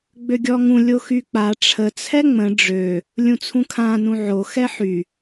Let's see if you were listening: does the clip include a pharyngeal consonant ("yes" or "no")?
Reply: yes